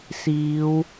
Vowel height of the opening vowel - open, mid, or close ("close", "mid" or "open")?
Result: close